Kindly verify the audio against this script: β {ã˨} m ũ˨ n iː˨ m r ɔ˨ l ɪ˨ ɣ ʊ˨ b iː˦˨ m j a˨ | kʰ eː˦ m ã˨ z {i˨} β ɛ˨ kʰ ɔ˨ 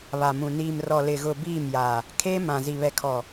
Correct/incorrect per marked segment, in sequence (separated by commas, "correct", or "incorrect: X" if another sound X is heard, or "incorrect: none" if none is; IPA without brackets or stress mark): incorrect: a˨, correct